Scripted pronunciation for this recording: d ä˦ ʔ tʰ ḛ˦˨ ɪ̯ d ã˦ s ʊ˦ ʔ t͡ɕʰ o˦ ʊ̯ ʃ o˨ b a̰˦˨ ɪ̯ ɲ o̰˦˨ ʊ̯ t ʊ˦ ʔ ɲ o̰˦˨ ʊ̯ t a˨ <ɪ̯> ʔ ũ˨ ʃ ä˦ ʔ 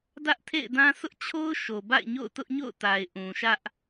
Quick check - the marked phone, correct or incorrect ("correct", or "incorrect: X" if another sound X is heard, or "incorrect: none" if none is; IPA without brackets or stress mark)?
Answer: correct